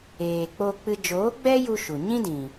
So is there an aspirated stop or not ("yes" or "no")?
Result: no